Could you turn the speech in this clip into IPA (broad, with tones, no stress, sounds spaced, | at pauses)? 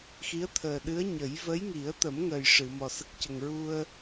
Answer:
x i˧˥ ə̯ t̪ʰ əː˨˩ ɗ ɨ˧˥ ə̯ ɲ ə˨˩˦ j v ə˧˥ j ŋ i˨˩˦ ə̯ t̪ ə˨˩˦ m ŋ ə˨˩ j ʂ ɨ˨˩˨ m ɔ˨˩ s ə˦˥ k̚ c ə˨˩ ŋ ɹ u˧ ə̯